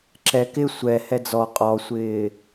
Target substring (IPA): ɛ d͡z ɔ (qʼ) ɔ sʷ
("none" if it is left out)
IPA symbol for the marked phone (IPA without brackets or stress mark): qʼ